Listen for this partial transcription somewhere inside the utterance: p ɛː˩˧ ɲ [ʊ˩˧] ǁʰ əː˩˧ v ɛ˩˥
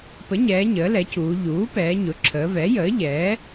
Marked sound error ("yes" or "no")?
no